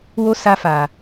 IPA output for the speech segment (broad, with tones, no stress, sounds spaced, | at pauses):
w o˧ s a˧ f a˨